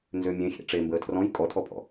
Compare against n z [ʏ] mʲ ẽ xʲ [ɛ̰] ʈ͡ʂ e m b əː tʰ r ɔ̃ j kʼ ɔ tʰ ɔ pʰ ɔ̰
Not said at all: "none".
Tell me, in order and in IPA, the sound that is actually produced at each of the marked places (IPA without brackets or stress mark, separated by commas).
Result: ʏ, ḛ